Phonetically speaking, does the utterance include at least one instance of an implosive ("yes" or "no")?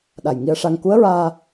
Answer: yes